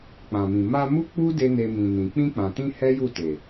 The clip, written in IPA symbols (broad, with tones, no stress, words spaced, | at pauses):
k͡pã˨mĩ˨ ma˧mu˦k͡pu˦ de˦ne˧mĩ˨nĩ˨ k͡pĩ˧k͡pã˨tĩ˧ hɛ˦ju˦˨te˨